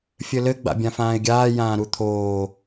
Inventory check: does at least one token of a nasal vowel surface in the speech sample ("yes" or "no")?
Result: yes